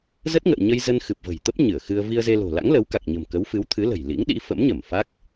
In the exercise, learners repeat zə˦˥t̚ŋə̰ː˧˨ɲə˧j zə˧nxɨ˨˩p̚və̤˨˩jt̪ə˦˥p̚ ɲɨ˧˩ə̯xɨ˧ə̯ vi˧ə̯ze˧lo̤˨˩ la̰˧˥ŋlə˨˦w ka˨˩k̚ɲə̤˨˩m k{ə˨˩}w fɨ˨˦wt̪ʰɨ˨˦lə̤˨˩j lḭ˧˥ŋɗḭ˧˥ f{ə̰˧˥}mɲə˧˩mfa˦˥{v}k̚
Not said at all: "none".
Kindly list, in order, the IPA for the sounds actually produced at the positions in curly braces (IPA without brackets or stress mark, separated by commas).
ə˨˦, ə̰˧˥, none